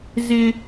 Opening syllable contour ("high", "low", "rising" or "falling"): high